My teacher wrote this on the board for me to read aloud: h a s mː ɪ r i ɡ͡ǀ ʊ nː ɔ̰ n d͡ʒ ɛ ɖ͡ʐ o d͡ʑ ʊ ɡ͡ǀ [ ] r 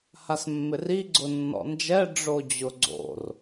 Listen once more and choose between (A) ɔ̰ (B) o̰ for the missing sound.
B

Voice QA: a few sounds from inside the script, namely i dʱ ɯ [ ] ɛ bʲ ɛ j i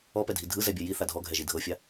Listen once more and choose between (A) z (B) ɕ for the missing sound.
A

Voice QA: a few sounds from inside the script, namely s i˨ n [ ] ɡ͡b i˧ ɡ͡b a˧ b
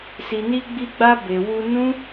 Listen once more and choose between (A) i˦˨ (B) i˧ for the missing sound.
B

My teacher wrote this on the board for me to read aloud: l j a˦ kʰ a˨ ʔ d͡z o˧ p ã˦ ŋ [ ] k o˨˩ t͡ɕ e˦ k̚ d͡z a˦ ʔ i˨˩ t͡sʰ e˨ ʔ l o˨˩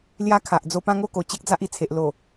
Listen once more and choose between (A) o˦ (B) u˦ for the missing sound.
A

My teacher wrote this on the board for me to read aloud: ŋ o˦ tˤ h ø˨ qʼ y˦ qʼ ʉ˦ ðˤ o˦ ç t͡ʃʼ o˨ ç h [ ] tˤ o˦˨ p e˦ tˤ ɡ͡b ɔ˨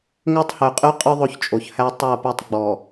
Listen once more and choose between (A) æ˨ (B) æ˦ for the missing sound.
B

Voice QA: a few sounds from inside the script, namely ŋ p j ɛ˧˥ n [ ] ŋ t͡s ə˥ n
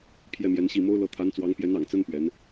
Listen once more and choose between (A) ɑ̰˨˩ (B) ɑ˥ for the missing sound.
A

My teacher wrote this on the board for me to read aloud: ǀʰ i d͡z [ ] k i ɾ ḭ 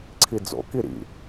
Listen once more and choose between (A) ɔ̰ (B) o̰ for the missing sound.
B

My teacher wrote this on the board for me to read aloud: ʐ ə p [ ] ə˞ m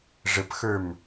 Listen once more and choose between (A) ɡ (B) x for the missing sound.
B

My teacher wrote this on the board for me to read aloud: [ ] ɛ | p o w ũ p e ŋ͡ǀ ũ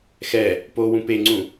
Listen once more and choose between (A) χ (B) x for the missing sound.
B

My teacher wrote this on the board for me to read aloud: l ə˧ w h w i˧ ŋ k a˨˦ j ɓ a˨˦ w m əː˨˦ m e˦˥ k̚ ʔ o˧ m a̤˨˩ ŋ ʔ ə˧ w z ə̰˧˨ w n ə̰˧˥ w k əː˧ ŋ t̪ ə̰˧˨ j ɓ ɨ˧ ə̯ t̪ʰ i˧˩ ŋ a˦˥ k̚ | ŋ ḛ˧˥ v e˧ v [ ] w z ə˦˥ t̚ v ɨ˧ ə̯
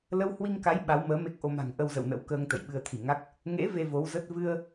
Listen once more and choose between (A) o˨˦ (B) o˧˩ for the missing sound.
A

